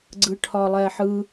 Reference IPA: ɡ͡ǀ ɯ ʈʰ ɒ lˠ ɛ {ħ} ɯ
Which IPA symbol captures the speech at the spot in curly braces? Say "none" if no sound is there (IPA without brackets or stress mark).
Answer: ħ